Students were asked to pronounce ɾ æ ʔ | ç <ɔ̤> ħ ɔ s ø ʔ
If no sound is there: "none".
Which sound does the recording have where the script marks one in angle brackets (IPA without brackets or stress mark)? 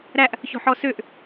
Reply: ɔ̤